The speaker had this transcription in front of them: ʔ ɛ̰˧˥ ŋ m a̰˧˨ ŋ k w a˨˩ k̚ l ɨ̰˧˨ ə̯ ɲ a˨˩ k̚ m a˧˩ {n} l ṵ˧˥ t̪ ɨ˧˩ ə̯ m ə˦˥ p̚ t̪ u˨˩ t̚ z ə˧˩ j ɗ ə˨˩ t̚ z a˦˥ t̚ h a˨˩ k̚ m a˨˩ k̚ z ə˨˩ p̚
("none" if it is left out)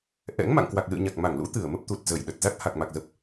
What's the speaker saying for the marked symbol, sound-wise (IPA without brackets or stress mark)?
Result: ŋ